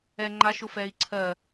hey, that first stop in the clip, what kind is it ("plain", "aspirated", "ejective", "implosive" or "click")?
click